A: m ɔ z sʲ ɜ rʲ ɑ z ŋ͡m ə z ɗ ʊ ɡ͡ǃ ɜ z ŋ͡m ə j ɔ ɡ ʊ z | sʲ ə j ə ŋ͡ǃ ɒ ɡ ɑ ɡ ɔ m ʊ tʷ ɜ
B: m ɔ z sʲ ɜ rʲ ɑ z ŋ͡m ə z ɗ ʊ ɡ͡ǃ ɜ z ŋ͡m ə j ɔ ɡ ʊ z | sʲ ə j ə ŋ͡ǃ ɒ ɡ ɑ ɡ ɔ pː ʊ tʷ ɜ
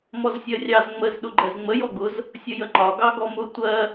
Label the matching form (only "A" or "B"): A